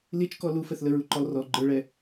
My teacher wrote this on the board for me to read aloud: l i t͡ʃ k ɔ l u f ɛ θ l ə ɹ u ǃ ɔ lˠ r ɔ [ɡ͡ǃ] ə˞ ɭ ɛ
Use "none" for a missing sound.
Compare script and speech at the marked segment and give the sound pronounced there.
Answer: ɡ͡ǃ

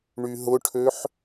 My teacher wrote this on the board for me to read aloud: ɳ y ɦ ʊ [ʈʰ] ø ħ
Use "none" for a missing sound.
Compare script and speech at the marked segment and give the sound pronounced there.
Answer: ʈʰ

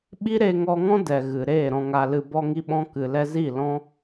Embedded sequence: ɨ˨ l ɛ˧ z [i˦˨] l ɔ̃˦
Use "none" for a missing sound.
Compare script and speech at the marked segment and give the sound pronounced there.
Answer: i˦˨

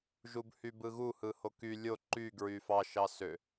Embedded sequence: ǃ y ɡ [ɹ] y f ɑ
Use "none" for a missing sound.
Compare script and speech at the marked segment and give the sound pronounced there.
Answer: ɹ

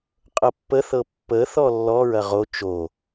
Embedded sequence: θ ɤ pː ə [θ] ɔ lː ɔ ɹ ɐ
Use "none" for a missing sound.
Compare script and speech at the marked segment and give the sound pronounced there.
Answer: θ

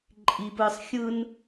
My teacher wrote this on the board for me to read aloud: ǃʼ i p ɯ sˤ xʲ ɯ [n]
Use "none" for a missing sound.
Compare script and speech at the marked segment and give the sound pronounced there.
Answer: n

